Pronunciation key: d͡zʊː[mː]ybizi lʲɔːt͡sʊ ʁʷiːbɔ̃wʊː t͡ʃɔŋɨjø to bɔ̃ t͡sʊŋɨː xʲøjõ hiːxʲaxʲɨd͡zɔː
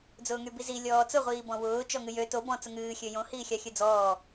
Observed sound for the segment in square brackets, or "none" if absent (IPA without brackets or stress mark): ŋ